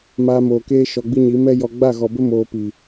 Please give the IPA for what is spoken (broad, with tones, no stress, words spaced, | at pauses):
maː˧moː˨keː˦ ʃɔ˧ɡ͡bi˦ɲi˨˦ mɛ˦jɔ˧ ɡ͡ba˦˨ɣɔ˨bə˦ moː˧pi˨